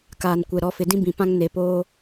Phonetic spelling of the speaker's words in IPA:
k aː˨ n kʷ ɛ˨ ɾ ɔ˨˦ f ɪ˨ d ĩ˦ b ĩ˨ p ã˦ ŋ n e˨ p oː˦

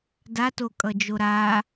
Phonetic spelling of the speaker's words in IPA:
d a t o kʼ ʌ d͡ʒ o ɾ a

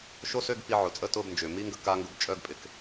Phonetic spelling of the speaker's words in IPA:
ʃ o˦˥ s ø˧˥˧ ɡ p i˧ ʕ ʊ˩ t͡sʼ ə˧˥˧ t ʊ˧˥˧ b n d͡ʒ ʏː˩ m i˦˥ ŋ ɡ ə˧ k a˦˥ ŋ ɡ ʊ˧ b t͡ʃʼ œ˧˥˧ ɡ pʼ ɪ˩ k

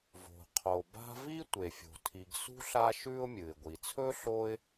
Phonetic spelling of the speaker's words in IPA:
v o̤˩ qʰ o˩ b a̤˦ v i˥ tʷ e˩ fʲ o̤˩ tʰ i˨ ɡ s ṳ˥ ɬ a˦ ʃ ʉ˦ ʊ̯ mʲ ɨ˩ ɪ̯ ɡʷ i˩ t͡sʰ ɵ˥ ɬ o˦ ɪ̯

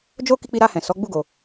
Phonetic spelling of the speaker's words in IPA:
d͡ʒ o˦ k i˧ k͡p i˧ ɾ a˧ h ɛ̃˨ s ɔ˨˦ ɡ͡b u˦ ɡ o˧

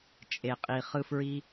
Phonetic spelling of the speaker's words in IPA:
t͡ʃʼ e˨ qʼ i˨ χ ɯ˧ f ɹ i˧

